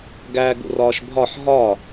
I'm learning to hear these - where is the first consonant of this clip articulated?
velum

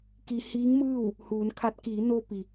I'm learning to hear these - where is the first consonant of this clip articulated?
velum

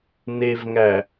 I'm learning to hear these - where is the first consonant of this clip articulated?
tongue tip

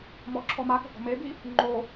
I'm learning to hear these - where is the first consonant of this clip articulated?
lips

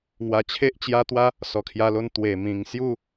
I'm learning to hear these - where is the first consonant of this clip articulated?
velum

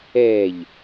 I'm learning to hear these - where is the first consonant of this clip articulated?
palate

